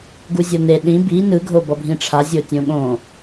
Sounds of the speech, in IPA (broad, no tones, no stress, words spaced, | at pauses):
ɡuzʲʌne ɗĩ bi nɯ ɡʱobʌbʱĩʈ͡ʂʰa zʲotʲõɠõ